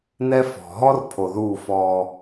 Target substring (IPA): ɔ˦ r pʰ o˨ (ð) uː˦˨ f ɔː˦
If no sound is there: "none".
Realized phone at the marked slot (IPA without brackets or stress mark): ð